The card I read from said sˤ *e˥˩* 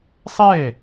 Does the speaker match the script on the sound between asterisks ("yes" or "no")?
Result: yes